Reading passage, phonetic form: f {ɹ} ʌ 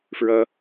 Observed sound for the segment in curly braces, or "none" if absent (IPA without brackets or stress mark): ɹ